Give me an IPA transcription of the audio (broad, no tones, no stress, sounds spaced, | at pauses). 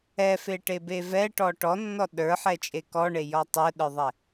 ɛ f e ʈ e b e v ɛ ʈ ɔ ʈ ɔ nː ɔ ɗ ə˞ ħ ɛ t͡ʃʼ e k ɔ ɳ e j ɔ tˤ ə˞ ɗ ə˞ ðˤ ɛ